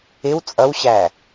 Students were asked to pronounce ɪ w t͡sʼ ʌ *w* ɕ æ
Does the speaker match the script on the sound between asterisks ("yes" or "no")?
yes